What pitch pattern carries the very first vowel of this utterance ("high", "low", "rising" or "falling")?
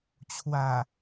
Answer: low